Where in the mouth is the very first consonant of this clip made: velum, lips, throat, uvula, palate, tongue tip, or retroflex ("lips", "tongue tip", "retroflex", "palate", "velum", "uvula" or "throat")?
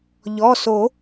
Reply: palate